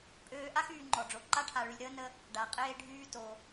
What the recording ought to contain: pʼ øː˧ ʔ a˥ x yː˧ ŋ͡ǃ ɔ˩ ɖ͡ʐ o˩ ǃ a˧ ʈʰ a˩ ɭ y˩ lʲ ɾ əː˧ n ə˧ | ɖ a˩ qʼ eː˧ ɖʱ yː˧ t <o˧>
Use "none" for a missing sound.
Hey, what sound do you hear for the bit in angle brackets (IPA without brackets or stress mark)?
o˩